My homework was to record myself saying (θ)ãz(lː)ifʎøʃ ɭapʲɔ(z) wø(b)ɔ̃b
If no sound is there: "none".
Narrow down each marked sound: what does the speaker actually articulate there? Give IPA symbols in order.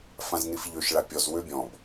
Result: f, n, z, bʲ

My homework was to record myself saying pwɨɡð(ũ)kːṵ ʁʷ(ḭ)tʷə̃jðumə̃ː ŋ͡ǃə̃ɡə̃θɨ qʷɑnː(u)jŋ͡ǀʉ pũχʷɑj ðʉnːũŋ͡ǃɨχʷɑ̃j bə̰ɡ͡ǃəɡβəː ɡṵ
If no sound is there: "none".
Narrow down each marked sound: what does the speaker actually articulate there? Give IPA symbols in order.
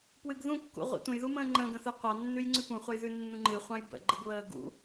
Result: ũ, ḭ, ʉ

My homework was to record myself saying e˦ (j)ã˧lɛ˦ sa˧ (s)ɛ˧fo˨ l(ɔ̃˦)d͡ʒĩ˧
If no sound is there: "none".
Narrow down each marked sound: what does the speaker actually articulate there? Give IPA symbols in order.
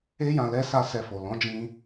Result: j, s, ɔ̃˨˦

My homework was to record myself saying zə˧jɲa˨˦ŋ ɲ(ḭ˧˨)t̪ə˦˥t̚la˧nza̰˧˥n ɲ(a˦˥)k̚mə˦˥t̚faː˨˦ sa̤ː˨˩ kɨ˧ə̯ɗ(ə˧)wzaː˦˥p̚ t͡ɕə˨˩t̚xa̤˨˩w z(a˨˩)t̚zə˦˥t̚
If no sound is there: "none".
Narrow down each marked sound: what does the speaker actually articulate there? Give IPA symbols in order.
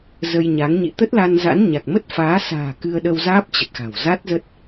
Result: ḭ˧˨, a˨˩, ə˧, a˦˥

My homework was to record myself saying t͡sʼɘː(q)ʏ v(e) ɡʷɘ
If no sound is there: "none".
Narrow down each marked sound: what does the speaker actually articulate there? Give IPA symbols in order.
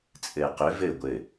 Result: q, ɘ

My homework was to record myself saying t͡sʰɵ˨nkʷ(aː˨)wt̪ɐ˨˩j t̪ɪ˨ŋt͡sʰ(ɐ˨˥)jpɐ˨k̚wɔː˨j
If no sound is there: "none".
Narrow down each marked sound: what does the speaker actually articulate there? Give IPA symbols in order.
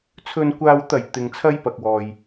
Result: aː˨, ɐ˥

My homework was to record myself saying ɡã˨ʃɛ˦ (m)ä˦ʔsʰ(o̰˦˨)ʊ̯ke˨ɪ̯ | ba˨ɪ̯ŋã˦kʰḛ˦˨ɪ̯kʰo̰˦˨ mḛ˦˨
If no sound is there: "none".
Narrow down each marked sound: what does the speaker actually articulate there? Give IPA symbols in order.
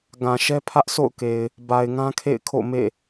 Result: pʰ, o̰˦˨

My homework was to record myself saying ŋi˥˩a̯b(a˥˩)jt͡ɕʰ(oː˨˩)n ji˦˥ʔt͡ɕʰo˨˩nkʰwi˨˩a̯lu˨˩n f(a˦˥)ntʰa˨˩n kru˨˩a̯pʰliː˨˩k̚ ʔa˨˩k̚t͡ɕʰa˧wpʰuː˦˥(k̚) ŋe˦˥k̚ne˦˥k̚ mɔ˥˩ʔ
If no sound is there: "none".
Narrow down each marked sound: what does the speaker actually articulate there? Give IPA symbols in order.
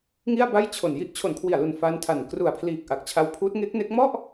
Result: a˥˩, o˨˩, a˦˥, t̚

